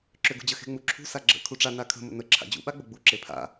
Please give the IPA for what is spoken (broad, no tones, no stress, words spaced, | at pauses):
ǁʏɡṳd͡ʑə xe̤ŋ͡muǁʰṳ saɡ͡ǁə̰ kʰuʈ͡ʂa nakʰə̤ mə̰nə ǁʰa̰d͡ʑṵ ɓaɡ͡bəɡ͡bu ǁepʰa̰